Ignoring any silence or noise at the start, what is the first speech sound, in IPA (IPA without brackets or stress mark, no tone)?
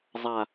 zˤ